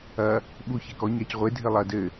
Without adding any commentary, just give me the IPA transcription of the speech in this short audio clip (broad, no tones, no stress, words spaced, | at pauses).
ɐ | ɓu çekɔ ɲacʁʷe dʱɘlˠɐ dɘ